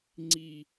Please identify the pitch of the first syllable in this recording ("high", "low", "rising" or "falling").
high